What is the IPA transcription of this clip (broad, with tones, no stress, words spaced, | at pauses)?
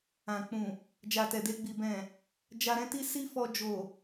ã˨k͡pũ˨ | d͡ʒa˨tɛ˨de˧ɡ͡bi˨ bɛ̃˨ | d͡ʒa˧ɾɛ̃˦ti˦ si˦fɔ˧ d͡ʒo˨